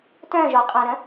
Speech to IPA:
t œ̃ ʒ ɔ qʼ ã ɾ ə̃

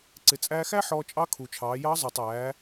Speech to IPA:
ǀ ɪ˩ t͡sʼ æː˧ x æ˥ ħ ɔː˧ t͡ʃʼ ɑ˧˥ kʰ u˩ t͡ʃʰ ɑː˩˧ j ɑ˧˥ zˤ ə˞˩ tˤ æː˩˧

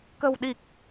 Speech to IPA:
k ə̤˨˩ w ɗ i˨˩ k̚

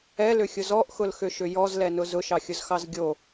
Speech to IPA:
ɛ l ʏ xʲ ʊ z ɔ ʔ x ʊ l x ʏ ʃ ʏ j ɔ z l ɛ n ʊ z ʊ ʃ ɑ xʲ ʊ z x ɑ z ɡʲ o

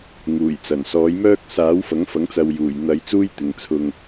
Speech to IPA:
ŋ uː˨˩ j t͡s ɐ˨˩ n s ɔː˨˥ j m œː˥ k̚ s aː˨˥ w f ɐ˨˥ ŋ f ɐ˨˥ ŋ t͡s ɐ˨ w j uː˨˩ j n̪ ɐ˨˧ j t͡s uː˥ j t̪ ɪ˨ ŋ t͡sʰ ʊ˨ ŋ

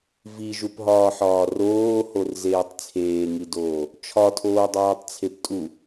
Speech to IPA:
v i ʒ u p ɦ ɒː ħ ɒː r oː h o r z eː tˤ t͡sʰ eː ŋ i d oː | t͡ʃʰ ɒ tʰ oː dˤ oː tˤ t͡sʰ e p tʼ u

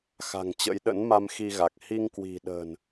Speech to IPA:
x a̤˨˩ ŋ t͡ɕ ə̰˧˥ j ɗ ə̰˧˥ n m a˧ m x i˧ ɣ a˨˩ k̚ h i˧ ŋ k w i̤˨˩ ɗ ə̤ː˨˩ n

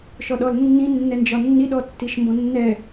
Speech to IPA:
ʃ ɔ ɗ ɔ l nː ĩ nː ɛ n d͡ʒ ɒ nː i ɗ ɔ tː i ʃ m b ɔ̃ nː ɛ

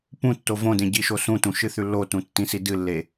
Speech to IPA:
p ũ tː o v õ d ẽ ɟ i ʃ o s ũ t ũ ʃ ɨ θ ʉ lː o t ũ tː ĩ s i d ɨ lː e

